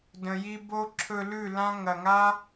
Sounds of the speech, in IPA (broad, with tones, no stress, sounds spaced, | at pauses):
d ə̃˨ j i˧ b o˦ ǁʰ ɵ˧ l ʉ˦˨ l ã˦ ŋ ɐ˨ ŋ a˦